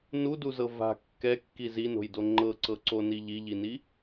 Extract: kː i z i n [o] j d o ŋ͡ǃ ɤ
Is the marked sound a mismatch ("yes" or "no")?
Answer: yes